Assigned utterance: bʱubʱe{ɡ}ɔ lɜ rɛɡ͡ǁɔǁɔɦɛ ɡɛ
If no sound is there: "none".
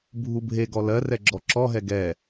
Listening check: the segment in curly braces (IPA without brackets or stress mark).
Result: ɡ